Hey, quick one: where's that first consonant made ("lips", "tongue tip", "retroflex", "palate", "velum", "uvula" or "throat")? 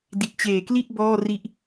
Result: tongue tip